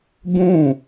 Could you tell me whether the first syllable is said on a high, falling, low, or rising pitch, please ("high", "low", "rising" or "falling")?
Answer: falling